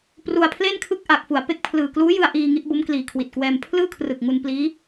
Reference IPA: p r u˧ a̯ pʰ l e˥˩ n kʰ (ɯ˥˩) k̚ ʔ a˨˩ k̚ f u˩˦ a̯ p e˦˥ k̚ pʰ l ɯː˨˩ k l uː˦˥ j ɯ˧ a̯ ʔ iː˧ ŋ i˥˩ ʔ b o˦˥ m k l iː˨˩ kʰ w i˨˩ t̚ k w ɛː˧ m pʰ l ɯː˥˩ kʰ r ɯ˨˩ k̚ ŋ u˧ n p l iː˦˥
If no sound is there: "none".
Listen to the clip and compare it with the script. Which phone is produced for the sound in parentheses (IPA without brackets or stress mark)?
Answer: ɯ˥˩